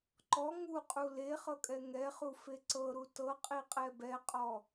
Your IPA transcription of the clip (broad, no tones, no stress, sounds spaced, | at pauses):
ǃ ɔ ŋ u qʼ u l e χ ɤ kʼ ɛ ŋ ɛ χ u f e ǀ ɤ ɾ u t ɤ qʼ i qʼ ɛ b ɛ qʼ ɔ